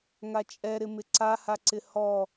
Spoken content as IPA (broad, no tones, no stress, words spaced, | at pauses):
ŋat͡ʃʼɛɾɪ mɪǀahaǀɪ hɔ